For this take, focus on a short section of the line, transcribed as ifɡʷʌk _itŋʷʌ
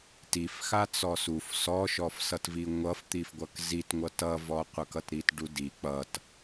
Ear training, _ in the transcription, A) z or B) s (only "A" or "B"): A